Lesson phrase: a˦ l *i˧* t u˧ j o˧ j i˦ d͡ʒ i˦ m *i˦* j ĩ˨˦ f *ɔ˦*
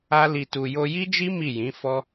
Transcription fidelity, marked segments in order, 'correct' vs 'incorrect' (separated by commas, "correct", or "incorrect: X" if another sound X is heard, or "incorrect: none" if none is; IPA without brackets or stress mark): correct, incorrect: i˦˨, correct